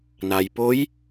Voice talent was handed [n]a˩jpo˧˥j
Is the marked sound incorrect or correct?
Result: correct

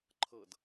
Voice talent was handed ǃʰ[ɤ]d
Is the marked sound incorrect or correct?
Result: correct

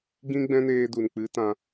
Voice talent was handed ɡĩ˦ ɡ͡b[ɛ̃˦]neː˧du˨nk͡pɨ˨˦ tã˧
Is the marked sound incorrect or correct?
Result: correct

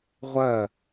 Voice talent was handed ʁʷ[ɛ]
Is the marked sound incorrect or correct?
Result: incorrect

